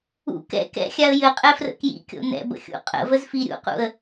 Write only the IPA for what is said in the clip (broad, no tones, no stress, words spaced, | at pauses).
ṵ kɛ̰ kɛ̰xʲaə̯ jɘqʼɛfrə̰ kjḭkʲo̰ nɛ̰bə̰xʲṵ qʼə̰vəzfi ɾʲṵqṵə̯